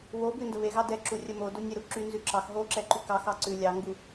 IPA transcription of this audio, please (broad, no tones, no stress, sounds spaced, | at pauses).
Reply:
w o b ʉ n d ə β e ɣ ɑ d ɛ ǁ u rʲ ə m o d o nʲ e ɾ u ǁ y n z ʉ ǁ ɑ x ɦ o ǁ ɛ ǃ y k ɑ x ɑ ǀ ʉ lʲ ɑ ŋ ɡ u